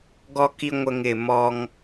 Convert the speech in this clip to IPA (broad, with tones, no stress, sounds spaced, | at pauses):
ɡ ɔ˦ k i˦ ŋʷ ə˦ ŋ ɪ˦˨ m ɔ˦ ŋ